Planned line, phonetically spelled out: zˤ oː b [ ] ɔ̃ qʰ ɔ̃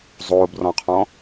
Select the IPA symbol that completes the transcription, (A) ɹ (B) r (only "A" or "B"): B